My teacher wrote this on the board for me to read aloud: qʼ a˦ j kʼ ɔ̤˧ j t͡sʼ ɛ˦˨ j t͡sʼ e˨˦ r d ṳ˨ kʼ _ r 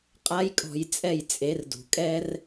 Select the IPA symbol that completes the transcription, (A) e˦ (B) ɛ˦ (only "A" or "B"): B